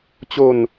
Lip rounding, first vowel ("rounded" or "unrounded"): rounded